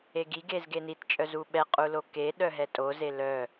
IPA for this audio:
e ɡ i ɡ e z ɡ e n i t t͡ʃʼ œ z u ɓ ɛ qʼ u l o k e ɗ œ ɦ ɛ tʼ o z e l œ

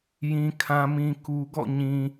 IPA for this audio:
j ĩ˨ kʰ ã˨ m ĩ˨ k u˨ ɡ ɔ̰˦˨ ɲ ĩ˨

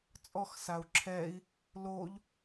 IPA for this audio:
t͡sʼ ɔ x s a u̯ ǁʰ ɛ i̯ | l o ʎ

